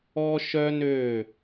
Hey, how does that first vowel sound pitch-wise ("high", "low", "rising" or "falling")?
high